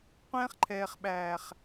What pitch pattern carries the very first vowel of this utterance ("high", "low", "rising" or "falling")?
high